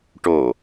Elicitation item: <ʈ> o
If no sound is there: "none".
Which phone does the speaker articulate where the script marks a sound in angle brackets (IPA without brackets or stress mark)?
ʈ